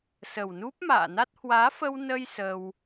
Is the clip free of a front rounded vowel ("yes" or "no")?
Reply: yes